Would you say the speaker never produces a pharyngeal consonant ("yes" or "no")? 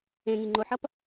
no